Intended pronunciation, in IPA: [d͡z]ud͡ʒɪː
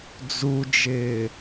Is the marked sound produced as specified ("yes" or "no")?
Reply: yes